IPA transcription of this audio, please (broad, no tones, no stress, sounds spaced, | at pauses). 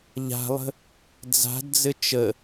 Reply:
ʎ a̤ lˠ ə̤ | d͡z a̤ d d͡z ɘ t͡ʃ ə